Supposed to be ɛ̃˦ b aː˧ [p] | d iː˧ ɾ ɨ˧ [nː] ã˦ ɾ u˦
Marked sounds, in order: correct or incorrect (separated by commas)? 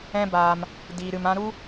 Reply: incorrect, incorrect